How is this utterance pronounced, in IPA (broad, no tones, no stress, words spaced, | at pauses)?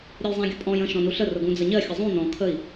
ɾʲəjzˤæ̃ɡʲʊpʼɔ̃j ə̃ ʃɔ̃nuɬə rʊɡũd͡zəɲɜ xʲəzˤũ nɔ̃ kʰəi̯